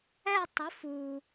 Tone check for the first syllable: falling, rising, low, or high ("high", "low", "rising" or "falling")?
falling